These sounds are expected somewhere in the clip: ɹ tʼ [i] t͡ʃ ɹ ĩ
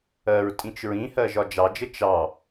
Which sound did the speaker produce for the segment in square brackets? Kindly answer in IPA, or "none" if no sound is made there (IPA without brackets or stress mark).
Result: ĩ